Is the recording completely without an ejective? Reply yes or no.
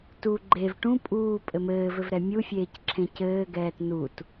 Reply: no